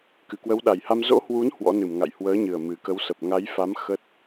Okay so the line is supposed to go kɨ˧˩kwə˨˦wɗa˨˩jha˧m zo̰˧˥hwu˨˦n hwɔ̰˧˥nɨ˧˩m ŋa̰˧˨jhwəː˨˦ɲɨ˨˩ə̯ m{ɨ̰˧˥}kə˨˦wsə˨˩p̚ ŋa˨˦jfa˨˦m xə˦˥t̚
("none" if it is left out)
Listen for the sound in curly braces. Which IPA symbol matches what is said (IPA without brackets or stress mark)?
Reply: ɨ˨˩